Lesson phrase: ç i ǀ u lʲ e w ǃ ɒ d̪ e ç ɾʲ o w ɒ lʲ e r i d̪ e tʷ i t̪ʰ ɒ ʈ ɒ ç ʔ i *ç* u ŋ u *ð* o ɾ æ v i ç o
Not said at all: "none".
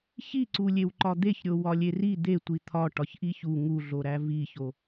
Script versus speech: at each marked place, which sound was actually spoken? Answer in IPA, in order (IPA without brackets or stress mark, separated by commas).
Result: ç, ɮ